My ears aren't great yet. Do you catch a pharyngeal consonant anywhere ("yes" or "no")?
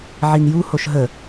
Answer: yes